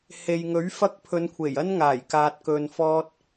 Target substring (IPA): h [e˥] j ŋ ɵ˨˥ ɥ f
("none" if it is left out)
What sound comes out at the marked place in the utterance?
e˨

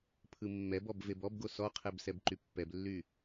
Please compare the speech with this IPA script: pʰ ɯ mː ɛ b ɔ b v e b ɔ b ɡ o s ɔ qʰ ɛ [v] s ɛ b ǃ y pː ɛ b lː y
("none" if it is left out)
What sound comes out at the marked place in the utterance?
b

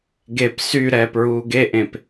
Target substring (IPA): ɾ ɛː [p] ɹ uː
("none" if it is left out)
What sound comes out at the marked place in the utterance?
p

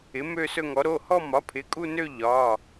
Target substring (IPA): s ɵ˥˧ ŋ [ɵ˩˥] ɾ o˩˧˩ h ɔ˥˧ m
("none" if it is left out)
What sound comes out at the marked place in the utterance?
ɔ˩˥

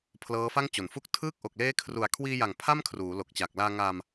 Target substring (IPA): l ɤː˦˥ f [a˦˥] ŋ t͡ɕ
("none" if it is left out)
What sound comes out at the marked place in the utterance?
a˥˩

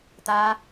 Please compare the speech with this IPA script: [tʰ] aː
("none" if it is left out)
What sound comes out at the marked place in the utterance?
t̪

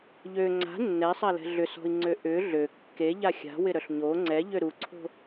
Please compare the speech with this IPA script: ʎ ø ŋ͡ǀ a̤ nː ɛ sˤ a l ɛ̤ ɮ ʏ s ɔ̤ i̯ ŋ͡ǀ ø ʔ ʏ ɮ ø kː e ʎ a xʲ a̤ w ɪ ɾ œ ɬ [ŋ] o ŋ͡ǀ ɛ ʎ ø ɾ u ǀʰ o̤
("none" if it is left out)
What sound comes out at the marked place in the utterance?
ɲ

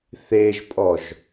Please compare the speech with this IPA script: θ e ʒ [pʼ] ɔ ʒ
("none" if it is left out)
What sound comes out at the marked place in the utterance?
pʼ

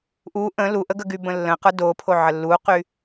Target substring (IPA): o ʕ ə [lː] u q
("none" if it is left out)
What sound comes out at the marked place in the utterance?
lː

